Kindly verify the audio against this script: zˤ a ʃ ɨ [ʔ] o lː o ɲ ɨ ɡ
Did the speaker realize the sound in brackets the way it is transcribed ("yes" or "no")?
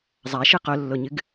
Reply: no